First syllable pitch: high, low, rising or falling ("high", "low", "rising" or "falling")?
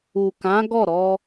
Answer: low